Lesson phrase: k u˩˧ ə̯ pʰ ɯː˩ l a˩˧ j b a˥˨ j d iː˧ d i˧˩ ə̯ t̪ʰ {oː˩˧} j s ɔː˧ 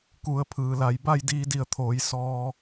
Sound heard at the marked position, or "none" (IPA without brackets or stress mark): oː˩˧